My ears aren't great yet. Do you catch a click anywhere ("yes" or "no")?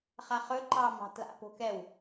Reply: yes